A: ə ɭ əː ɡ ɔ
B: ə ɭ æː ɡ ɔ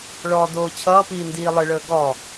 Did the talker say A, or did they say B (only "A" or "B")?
A